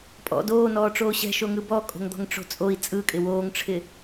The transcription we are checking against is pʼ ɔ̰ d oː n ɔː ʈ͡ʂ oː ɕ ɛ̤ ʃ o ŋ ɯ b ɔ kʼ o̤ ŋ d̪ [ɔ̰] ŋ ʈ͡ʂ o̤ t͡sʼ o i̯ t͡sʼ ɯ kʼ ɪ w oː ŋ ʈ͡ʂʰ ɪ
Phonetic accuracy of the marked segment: incorrect: ɔ̤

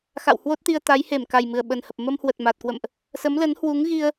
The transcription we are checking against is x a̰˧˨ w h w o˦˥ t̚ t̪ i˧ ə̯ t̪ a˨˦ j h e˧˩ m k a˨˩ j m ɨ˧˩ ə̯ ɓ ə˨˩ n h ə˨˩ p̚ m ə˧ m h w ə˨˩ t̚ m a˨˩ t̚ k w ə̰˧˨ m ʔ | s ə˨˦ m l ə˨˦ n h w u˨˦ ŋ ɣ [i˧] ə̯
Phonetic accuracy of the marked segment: correct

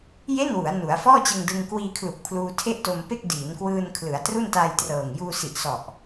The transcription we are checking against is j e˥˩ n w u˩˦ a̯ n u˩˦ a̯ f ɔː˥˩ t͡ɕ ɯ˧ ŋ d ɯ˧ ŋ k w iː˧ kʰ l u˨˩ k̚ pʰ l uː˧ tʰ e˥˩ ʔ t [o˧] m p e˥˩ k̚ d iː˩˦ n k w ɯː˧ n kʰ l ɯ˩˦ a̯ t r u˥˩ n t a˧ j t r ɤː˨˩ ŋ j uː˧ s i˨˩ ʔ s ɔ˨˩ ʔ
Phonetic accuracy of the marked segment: correct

